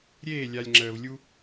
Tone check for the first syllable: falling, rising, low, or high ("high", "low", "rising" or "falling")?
falling